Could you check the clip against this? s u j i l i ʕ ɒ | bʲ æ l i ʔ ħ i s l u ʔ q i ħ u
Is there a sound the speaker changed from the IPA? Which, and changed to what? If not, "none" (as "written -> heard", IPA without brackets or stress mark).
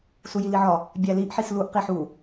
none